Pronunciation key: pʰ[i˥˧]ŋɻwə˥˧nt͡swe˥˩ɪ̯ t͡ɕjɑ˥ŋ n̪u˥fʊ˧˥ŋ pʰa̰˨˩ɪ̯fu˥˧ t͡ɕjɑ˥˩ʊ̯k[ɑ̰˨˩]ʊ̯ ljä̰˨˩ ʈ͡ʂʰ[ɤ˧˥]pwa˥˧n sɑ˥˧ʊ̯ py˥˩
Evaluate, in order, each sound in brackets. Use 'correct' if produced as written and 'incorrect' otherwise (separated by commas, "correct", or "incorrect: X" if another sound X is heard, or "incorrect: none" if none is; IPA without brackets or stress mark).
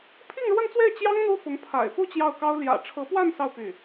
correct, incorrect: ɑ˥, correct